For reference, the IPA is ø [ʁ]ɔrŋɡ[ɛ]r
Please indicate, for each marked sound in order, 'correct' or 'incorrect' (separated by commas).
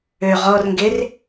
correct, incorrect